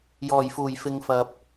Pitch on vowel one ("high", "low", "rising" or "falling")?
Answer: low